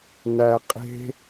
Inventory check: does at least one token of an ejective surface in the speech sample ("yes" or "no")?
yes